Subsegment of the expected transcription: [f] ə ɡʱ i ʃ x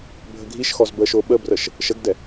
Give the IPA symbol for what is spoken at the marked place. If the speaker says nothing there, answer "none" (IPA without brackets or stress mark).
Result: bʱ